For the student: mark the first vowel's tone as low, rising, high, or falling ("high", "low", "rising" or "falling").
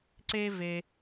high